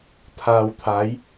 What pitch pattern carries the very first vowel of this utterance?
low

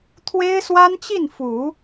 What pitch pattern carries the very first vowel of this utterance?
high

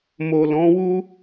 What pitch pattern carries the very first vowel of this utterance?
low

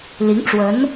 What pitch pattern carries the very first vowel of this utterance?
rising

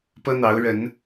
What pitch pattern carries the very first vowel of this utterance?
high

